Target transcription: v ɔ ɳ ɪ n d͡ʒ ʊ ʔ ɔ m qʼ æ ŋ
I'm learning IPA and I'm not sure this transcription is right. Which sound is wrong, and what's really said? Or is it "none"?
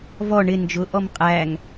none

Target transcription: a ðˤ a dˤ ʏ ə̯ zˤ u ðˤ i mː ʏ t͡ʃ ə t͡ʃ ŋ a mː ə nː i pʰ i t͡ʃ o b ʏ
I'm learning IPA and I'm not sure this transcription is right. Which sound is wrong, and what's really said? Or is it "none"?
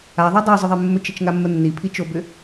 u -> ʏ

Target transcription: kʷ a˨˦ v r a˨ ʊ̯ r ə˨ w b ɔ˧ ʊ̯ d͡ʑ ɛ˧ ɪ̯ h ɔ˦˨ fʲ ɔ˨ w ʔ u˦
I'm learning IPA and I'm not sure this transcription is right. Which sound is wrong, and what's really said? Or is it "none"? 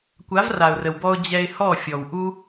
none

